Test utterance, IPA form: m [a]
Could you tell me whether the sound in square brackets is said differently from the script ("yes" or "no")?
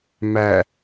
yes